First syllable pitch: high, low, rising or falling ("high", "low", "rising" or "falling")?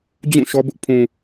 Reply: falling